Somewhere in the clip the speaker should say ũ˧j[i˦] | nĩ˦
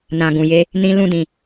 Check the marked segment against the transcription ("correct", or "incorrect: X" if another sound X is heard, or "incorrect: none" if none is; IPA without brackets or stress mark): incorrect: e˦